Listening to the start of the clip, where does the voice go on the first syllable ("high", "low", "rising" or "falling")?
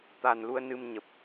low